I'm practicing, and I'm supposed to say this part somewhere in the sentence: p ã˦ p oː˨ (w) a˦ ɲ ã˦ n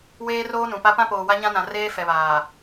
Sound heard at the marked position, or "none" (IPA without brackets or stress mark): w